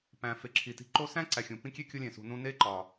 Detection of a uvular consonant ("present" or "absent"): absent